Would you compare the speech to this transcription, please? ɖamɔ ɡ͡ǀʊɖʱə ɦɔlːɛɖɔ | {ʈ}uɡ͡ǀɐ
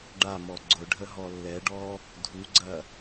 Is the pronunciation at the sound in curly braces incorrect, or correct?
incorrect